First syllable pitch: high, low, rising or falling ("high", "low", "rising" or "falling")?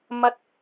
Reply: high